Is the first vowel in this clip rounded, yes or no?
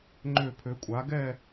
yes